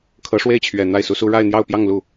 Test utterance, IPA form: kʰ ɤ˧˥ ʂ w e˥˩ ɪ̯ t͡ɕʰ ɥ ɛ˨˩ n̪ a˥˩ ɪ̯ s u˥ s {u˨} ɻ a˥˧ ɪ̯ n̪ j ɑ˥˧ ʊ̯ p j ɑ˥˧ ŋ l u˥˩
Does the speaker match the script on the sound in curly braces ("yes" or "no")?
no